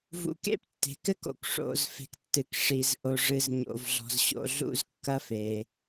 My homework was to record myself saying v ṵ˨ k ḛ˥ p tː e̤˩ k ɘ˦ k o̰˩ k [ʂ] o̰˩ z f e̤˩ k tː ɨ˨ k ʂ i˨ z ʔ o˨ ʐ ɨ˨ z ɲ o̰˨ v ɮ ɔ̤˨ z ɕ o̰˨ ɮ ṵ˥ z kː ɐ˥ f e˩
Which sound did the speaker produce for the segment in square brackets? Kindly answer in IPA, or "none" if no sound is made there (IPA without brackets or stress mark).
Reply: ʂ